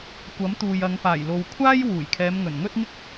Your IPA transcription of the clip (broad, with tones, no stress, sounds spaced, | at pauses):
kʷ ɐ˨˥ m t̪ uː˨ j ɐ˨˧ ŋ p aː˨˩ j l o˨ w kʷʰ aː˥ j w uː˨˩ j kʰ ɛː˨˧ m ŋ ɵ˨˩ n ŋ ɵ˥ t̚ ŋ ɪ˥ k̚